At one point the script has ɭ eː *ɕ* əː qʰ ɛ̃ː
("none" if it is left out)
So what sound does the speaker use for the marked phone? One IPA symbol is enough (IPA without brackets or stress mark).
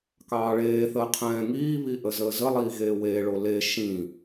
θ